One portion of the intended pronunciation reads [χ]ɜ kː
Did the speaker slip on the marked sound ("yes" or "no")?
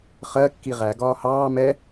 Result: no